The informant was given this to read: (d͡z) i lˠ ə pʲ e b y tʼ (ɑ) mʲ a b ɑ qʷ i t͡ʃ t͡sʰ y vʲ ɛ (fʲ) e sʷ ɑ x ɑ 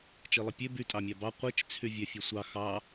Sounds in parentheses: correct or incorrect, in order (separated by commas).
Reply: incorrect, correct, correct